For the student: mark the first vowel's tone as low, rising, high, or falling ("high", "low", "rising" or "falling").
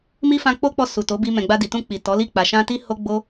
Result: high